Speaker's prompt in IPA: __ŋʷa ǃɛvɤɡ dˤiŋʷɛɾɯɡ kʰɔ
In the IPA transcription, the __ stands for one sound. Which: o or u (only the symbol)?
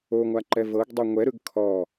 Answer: o